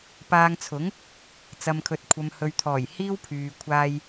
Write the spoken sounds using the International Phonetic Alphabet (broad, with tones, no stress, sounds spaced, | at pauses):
p aː˧ ŋ t͡sʰ ʊ˨˥ ŋ | t͡s ɐ˨ m kʰ ɵ˨ t̚ kʷʰ ɐ˨ m h ɵ˨ ɥ t̪ʰ ɔː˨˩ j h iː˥ w pʰ yː˨ kʷʰ aː˧ j